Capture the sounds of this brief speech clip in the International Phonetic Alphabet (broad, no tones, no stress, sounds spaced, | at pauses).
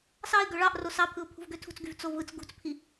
s ɑ ɪ̯ ɡ ø ɭ ɑ ʔ r o s ɑ pʰ ɯ ʊ̯ pʰ ṳ v ɡ ø tʰ ṳ t͡s ɡ y v t͡s o v ɯ t͡s ɡ ṳ t͡s pʰ i